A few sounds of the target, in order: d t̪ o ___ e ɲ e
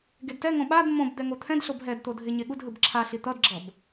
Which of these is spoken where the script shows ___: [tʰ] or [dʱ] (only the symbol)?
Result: dʱ